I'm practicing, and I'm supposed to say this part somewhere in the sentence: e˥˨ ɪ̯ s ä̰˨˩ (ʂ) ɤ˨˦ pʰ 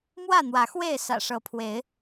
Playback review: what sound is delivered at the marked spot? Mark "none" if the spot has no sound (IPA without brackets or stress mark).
ʂ